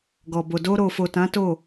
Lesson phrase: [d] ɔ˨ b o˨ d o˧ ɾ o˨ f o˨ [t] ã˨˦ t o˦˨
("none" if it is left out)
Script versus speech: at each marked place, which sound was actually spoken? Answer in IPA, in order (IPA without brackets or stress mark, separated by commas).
ɡ, t